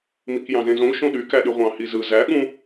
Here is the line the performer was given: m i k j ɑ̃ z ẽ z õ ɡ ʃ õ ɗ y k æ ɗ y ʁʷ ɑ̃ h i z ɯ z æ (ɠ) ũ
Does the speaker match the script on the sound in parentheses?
yes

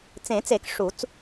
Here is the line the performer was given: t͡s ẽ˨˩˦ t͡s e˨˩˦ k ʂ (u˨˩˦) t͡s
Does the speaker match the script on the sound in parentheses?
yes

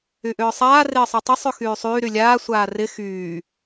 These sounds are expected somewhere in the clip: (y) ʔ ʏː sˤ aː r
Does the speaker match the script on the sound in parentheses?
yes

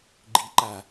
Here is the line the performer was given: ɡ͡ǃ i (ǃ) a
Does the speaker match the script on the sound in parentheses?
yes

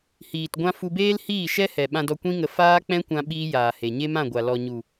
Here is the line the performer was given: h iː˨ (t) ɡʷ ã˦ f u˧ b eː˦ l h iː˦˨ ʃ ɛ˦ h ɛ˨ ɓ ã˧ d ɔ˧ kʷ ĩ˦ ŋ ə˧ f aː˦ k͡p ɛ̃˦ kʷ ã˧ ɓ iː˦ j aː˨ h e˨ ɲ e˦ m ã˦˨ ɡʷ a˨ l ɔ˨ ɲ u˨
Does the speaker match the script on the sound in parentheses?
yes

